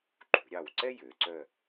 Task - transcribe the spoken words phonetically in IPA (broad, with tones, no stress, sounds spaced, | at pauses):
ǃ ṳ˩˧ ɾʲ ɑ˧˩ w ǀ ɛ˥ j ø˩˧ ǀ œ˥˧